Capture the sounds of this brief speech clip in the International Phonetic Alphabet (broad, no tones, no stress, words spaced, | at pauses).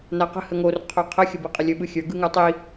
naqə̤ həŋor qʰoqʰəxʲə biqʼəlʲɵ ɓɯxʲə˞ ɡɯŋə˞tˤi